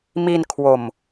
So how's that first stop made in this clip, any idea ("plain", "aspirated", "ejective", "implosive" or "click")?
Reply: aspirated